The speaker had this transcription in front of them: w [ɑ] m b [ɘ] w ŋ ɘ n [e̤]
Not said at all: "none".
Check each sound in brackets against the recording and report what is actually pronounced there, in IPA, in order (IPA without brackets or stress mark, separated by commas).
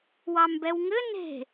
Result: ɑ, ɛ, e̤